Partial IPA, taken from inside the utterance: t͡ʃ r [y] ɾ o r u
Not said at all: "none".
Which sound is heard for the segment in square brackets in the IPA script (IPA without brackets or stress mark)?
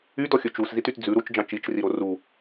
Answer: i